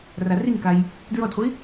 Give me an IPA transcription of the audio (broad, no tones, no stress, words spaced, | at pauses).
rariŋkaj | dɹɔdχʷi